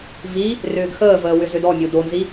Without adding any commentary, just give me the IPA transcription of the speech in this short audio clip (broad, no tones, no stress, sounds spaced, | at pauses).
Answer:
v i | r ʏː ɡ x əː v əː w ʏ z ʏ d ɔ mʲ o d o n z i